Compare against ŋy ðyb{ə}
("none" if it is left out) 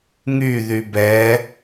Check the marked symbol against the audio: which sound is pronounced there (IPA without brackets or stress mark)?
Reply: ɛ